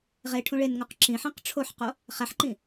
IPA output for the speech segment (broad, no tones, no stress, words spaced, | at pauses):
ʁe ʈʰũɭenŋuq ǁĩħĩq ʈ͡ʂʰoħqo | χæħǃĩ